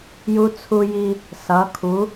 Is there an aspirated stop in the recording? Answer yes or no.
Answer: yes